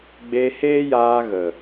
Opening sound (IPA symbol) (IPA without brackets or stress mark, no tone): ɡ͡b